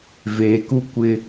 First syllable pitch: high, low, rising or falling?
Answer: low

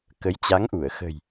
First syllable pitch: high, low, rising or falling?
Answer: rising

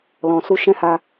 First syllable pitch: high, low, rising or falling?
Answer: low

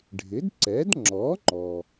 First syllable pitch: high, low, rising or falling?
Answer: rising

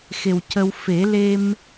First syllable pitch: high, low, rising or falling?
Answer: low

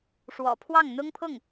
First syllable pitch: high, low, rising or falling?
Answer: low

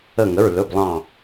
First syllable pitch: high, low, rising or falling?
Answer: falling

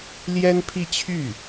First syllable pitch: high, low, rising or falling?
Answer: high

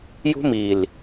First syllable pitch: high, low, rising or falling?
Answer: high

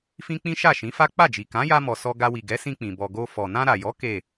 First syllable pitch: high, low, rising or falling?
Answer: high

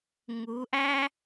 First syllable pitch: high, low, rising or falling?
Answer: rising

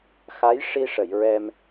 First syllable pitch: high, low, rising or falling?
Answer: rising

